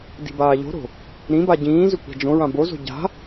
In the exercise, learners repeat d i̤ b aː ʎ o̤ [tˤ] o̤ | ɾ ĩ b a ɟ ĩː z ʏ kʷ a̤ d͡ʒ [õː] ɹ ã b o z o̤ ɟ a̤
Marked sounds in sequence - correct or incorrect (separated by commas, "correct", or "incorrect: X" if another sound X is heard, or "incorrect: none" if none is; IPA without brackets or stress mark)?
incorrect: ɾ, incorrect: õ